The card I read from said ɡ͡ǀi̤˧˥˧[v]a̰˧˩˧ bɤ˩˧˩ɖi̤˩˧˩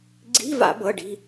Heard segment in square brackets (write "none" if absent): v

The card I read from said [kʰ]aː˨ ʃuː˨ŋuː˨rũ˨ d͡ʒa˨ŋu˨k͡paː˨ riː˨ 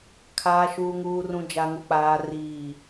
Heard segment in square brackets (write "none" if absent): kʰ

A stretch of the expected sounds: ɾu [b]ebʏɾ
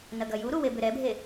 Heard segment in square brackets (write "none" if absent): w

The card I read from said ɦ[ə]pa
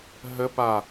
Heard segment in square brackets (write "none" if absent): ə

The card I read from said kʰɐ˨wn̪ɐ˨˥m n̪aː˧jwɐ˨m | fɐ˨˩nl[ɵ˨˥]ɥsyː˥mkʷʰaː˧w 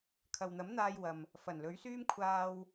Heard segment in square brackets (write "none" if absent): ɵ˨˥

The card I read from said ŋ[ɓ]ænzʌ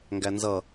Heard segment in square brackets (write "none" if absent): ɡ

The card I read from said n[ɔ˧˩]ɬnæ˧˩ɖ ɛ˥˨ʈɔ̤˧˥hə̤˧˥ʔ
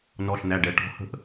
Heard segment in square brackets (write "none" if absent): ɔ˧˩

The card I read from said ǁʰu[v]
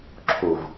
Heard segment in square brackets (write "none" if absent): v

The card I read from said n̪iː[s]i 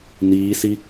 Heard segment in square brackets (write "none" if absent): s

